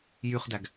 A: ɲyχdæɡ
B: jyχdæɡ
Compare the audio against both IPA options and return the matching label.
B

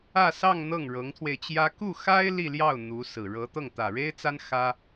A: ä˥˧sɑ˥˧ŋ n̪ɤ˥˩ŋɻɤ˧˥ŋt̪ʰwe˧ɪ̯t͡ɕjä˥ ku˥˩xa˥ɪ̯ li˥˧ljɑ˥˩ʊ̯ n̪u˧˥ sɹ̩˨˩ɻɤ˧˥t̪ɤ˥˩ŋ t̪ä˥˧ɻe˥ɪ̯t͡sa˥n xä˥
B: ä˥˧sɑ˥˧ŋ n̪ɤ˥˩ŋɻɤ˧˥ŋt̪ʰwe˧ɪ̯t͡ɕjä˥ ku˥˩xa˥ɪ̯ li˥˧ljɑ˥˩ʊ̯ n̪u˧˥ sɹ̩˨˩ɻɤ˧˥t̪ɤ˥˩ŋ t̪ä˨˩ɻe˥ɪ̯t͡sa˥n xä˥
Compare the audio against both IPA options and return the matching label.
B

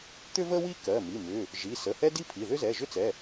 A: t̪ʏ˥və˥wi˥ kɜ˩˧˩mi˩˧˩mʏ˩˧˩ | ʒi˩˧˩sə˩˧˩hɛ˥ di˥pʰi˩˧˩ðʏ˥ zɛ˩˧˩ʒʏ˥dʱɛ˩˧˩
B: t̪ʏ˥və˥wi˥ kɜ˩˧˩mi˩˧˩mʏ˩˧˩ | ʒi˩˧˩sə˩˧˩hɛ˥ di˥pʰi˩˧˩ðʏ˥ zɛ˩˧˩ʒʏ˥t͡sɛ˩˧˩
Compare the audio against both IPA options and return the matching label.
B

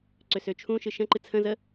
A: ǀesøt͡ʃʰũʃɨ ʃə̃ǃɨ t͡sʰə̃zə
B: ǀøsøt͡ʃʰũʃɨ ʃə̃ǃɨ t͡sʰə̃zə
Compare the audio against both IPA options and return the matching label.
B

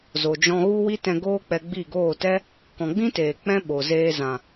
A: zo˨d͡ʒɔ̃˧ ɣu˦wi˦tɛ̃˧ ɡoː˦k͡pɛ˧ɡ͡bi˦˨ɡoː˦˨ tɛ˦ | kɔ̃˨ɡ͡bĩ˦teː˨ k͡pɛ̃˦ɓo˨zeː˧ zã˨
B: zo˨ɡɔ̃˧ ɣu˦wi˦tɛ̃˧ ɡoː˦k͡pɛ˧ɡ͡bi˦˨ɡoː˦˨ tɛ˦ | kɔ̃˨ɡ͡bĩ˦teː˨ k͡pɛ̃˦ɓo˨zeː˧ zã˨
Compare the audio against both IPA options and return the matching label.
A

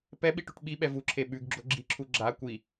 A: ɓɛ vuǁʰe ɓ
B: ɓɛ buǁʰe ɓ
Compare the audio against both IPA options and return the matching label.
A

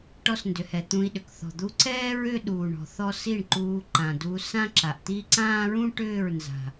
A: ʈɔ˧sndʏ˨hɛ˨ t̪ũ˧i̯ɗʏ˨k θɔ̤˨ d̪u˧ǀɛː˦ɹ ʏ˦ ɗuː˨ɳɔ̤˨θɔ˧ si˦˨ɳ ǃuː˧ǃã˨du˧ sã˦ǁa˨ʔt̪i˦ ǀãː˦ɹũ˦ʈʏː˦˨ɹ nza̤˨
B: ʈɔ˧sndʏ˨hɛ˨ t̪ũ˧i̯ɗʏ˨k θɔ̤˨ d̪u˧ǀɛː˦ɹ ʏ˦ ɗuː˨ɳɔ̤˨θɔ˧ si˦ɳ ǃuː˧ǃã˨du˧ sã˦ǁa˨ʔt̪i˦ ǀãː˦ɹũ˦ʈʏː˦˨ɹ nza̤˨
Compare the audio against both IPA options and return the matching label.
A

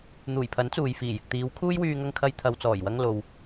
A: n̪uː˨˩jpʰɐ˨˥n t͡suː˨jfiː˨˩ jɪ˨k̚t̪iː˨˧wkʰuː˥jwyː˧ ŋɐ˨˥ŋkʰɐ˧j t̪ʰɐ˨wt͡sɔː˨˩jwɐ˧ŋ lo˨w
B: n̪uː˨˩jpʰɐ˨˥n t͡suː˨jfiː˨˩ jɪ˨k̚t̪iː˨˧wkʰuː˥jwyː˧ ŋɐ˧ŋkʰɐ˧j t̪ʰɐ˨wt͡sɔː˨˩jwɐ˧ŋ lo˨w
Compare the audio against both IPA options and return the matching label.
B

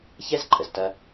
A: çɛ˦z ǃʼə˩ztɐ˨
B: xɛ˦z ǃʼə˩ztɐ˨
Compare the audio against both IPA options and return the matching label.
A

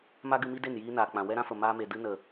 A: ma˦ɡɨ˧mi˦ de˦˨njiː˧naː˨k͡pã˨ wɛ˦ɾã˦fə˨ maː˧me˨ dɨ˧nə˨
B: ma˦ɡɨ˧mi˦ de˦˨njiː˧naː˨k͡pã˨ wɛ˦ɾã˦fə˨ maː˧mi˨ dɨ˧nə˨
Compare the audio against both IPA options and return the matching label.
A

